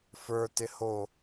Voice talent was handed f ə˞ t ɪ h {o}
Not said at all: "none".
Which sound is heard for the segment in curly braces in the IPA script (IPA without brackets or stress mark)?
o